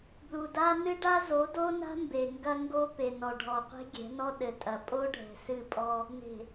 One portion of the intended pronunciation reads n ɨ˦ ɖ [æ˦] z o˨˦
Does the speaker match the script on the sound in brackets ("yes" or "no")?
no